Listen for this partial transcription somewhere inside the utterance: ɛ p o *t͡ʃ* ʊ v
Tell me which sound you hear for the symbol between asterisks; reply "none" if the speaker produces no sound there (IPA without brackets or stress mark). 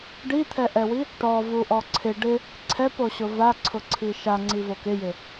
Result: ɕ